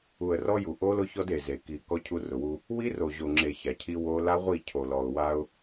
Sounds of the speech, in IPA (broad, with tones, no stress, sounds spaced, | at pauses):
u˨ ə̯ r ɔ˦ j u˨ ʔ o˦ l ʊ˦ ç ɔ˦ d e˨ z e˨ k i˨ k ɔ˦ cʰ u˦ r ʊ˨ w u˦ | w i˦ r o˨ ʑ o˨ ŋ͡ǁ e˨ ç a˨ cʰ i˦ w o˦ l a˦ ʁʷ i˦˨ cʰ o˨ l ɔ˨ ʊ̯ w a˦ ʊ̯